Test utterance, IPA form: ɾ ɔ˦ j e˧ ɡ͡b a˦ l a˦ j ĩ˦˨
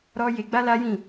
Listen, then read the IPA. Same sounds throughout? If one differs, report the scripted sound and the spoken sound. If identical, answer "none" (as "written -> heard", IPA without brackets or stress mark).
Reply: none